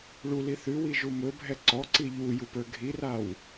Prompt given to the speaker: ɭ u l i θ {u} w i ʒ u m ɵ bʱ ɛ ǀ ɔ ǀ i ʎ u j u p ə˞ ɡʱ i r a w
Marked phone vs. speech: incorrect: ʉ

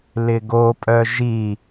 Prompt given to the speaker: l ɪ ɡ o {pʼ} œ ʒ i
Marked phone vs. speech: correct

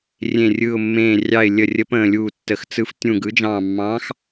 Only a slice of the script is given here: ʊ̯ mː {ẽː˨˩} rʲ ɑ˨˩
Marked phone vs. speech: correct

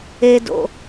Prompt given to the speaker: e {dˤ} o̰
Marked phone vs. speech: incorrect: d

